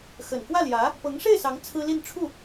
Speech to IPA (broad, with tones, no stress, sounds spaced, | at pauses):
x ə˨˩ n k w ä˥˩ l j ä˧˥ | p ɤ˧˥ ŋ ʂ e˥˩ ɪ̯ s ɑ˧˥ ŋ t͡sʰ ɹ̩˥ l i˥˧ n ʈ͡ʂʰ u˥˩